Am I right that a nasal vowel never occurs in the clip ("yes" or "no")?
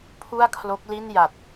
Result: yes